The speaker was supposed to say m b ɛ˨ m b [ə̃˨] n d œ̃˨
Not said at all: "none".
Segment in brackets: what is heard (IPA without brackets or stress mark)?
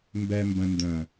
ə̃˨